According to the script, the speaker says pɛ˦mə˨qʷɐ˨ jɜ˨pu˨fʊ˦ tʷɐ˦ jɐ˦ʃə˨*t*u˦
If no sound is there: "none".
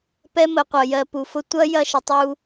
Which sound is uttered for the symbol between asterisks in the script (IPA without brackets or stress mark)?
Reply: tˤ